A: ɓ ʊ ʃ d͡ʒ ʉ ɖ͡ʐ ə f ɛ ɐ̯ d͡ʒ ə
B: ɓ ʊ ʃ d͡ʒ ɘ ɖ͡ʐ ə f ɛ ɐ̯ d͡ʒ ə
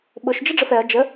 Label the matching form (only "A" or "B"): B